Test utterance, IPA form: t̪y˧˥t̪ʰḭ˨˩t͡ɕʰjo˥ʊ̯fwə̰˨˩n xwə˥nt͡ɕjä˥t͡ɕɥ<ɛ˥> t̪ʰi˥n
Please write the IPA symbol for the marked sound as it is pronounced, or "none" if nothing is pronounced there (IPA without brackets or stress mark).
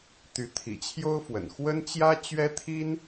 ɛ˥